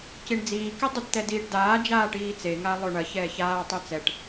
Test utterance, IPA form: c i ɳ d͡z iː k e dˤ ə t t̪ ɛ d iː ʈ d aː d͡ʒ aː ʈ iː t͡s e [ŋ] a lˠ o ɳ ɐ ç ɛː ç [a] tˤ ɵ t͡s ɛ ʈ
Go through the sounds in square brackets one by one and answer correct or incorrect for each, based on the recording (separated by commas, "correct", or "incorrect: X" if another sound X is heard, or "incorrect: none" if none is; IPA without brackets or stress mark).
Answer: correct, incorrect: aː